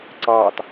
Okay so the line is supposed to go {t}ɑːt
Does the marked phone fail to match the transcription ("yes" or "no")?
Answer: yes